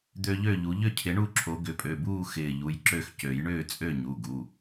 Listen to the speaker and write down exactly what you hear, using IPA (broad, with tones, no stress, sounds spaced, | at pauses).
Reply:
d̪ ø˦ ʎ ø˥˨ ʎ u˨˦ ʎ ʏ˥˨ cʰ ɪ˨˦ ɳ u˥˨ ǁʰ o˨˦ ɡ ʏ˨˦ pʼ ø˩˧˩ b uː˥˨ x ɪː˧˩ ʎ u˩˧˩ j ǁ ø˥˨ x c ø˨˩˦ j ɳ ʏː˥˨ t͡sʼ ø˥˨ ɲ u˩˧˩ ɡ u˩˧˩